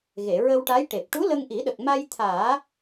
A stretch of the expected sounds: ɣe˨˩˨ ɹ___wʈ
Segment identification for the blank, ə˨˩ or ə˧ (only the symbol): ə˧